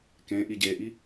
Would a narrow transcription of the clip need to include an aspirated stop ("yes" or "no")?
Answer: no